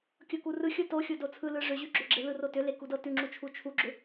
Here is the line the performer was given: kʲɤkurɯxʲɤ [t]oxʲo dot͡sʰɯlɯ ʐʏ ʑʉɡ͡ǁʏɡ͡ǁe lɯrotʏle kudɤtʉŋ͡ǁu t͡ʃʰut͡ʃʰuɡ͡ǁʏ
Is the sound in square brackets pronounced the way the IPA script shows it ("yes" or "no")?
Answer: yes